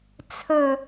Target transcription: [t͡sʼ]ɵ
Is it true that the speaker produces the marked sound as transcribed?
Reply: no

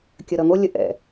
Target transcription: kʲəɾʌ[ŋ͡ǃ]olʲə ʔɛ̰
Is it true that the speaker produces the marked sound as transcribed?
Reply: no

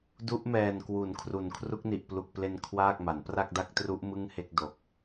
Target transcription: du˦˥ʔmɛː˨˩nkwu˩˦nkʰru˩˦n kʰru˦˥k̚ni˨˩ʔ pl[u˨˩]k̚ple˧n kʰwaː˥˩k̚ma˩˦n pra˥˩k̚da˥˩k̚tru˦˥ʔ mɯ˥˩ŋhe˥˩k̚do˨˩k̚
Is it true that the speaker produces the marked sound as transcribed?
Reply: yes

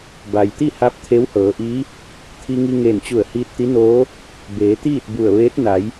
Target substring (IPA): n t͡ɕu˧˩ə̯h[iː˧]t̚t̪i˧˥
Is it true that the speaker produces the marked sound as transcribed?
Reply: yes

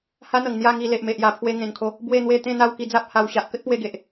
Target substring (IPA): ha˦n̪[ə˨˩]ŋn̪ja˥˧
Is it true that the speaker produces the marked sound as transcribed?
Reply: yes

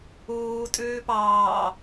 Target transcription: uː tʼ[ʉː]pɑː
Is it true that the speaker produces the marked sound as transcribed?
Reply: yes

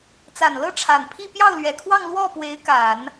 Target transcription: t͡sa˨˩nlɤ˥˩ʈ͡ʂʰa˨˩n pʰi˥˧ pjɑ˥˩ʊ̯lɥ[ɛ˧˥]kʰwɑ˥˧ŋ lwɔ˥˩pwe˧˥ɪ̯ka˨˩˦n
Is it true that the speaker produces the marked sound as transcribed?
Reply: no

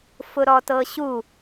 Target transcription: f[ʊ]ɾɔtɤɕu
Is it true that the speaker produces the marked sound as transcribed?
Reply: yes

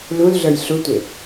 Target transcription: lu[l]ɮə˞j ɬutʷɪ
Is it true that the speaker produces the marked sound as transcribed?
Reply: yes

